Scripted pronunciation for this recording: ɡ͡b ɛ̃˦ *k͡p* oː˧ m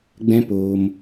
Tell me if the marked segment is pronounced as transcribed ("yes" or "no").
no